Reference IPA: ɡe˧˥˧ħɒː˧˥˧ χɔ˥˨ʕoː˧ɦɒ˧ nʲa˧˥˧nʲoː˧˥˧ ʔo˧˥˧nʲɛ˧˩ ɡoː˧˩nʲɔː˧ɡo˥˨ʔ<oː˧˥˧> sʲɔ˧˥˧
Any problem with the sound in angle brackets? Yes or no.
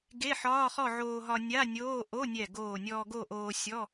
yes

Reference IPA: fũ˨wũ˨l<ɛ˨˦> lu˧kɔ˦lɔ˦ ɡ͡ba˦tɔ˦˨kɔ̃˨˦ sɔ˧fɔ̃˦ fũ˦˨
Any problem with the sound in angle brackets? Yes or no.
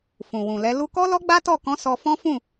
no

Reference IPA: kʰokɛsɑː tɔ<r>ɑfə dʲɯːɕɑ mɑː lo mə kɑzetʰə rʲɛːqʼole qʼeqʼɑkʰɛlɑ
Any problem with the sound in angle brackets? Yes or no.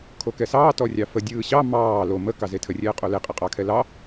yes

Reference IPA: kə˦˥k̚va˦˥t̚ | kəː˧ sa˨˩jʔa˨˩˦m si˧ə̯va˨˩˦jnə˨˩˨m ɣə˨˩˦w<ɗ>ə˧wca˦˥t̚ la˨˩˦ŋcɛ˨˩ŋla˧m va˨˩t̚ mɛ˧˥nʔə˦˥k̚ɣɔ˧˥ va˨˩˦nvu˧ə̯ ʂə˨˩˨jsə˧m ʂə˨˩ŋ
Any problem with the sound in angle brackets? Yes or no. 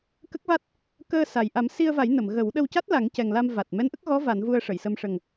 no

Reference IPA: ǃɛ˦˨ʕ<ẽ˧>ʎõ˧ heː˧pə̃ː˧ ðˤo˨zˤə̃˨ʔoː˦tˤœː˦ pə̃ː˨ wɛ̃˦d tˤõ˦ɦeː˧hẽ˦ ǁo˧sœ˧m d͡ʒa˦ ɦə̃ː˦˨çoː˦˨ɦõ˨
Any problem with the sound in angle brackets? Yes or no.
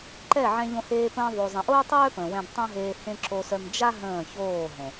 yes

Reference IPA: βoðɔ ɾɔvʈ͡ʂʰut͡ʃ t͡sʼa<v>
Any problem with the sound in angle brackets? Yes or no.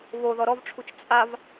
no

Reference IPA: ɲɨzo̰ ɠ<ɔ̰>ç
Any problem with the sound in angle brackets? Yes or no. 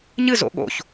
yes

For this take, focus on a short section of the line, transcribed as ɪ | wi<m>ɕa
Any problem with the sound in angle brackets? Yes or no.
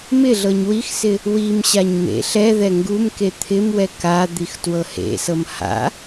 no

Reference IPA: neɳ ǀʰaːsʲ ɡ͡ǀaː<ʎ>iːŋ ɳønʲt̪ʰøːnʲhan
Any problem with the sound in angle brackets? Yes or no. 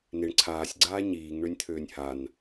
yes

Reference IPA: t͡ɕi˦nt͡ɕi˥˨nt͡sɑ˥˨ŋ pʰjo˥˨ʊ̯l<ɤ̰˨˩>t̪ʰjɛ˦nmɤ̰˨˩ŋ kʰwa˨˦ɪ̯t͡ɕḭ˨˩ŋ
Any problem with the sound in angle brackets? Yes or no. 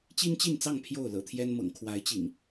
no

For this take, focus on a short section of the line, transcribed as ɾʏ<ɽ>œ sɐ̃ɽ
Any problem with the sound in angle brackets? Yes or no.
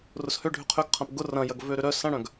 yes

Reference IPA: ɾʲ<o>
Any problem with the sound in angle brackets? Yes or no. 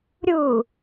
yes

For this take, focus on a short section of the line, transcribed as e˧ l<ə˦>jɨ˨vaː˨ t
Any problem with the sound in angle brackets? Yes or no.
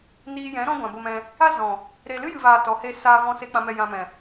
yes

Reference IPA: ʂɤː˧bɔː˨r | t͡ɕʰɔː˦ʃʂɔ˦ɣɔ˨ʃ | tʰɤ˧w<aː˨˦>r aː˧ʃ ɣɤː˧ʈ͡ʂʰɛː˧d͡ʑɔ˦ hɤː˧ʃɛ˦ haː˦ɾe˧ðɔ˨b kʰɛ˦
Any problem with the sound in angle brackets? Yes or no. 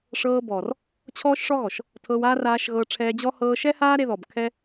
yes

